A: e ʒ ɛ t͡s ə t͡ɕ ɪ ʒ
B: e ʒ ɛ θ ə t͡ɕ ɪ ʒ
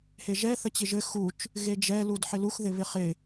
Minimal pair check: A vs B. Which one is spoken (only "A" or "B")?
B